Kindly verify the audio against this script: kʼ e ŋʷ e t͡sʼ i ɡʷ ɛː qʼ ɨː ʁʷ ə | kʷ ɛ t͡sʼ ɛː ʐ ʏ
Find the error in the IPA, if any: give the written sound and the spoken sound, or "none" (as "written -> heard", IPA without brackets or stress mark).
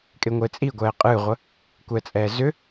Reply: ʐ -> z